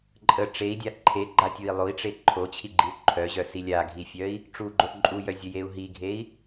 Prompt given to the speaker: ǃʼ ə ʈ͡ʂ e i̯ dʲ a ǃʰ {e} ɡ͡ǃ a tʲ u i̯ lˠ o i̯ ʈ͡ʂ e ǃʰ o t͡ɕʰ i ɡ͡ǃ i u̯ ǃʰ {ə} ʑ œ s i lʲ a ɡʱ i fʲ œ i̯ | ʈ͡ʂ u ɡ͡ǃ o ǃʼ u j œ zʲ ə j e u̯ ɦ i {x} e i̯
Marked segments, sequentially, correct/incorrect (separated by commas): correct, incorrect, incorrect